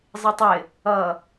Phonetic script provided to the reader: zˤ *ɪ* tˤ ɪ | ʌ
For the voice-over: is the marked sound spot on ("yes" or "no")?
yes